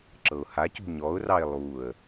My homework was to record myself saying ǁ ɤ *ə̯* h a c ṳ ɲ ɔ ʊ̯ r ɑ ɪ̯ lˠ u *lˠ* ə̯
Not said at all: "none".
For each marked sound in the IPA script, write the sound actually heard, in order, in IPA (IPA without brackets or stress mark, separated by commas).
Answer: ʊ̯, none